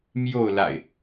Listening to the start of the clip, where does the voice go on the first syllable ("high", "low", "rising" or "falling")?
falling